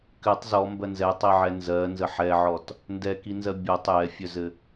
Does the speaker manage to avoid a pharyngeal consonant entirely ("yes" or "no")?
no